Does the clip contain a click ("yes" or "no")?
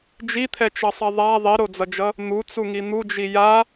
no